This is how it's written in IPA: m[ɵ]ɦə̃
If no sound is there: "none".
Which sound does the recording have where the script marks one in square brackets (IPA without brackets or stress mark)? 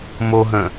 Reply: o